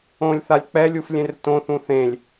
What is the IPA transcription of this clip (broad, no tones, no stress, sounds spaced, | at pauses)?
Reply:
õ lʲ θ a lʲ k͡p ɛ lʲ u f lʲ ẽ r t õ θ ũ θ ẽ lʲ